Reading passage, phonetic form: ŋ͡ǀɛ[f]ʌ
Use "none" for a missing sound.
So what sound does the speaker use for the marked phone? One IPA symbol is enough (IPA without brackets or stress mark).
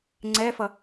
f